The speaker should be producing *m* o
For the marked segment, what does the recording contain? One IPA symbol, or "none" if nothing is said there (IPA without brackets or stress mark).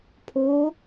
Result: pʰ